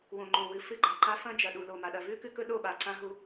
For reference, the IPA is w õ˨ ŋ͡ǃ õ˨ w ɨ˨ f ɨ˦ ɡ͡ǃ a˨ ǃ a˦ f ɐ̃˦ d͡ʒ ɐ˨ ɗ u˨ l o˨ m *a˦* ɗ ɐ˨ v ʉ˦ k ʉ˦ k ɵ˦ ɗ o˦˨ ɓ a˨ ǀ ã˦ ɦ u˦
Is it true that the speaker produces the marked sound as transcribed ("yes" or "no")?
no